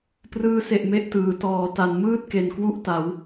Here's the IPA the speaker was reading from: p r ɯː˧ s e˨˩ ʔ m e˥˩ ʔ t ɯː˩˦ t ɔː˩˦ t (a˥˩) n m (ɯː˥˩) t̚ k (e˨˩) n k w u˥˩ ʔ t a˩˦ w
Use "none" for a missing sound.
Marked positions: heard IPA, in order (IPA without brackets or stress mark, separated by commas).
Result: a˩˦, ɯː˥˩, e˨˩